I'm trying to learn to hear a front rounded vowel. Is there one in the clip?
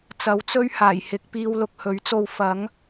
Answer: no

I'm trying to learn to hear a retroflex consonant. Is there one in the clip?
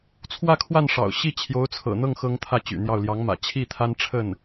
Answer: yes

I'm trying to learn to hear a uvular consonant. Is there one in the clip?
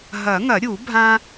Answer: no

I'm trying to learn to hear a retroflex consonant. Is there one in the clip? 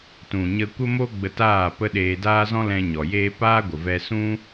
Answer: no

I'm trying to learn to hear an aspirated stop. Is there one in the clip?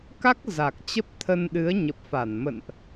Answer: yes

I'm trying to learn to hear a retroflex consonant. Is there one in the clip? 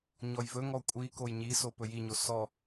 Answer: no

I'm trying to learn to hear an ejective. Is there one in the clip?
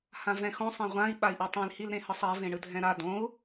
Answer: no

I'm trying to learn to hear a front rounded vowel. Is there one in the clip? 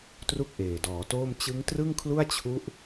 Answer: no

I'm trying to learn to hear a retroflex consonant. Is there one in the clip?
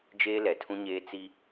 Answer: no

